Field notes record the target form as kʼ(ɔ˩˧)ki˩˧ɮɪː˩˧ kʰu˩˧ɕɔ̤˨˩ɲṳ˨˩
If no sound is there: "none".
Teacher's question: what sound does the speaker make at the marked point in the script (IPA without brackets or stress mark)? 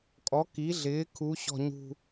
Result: ɔ˩˧